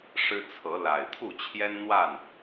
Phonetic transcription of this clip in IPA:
ʂɻ̩˦t͡sʰɤ˨˦la˨˩ɪ̯ t̪ʰu˥˨t͡ɕʰjɛ˦nn̪wa˥˨n

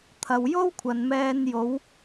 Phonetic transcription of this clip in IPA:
t̪ʰɐ˨wjo˥wkʷʰɐ˨nmɛː˧n jo˨˧w

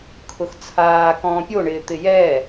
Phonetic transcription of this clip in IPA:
kʰʊxt͡sʰaːkɔ̃ː pʲoɳɪː t̪ɪjɛ

